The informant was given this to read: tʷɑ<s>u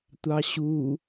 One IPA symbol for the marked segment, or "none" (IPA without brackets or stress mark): ɕ